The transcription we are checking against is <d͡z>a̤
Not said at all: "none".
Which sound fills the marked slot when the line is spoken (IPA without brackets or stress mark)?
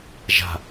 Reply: ʒ